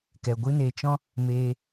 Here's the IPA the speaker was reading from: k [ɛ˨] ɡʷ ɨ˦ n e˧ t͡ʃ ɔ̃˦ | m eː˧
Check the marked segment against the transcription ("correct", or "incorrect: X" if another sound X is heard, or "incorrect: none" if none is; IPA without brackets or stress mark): correct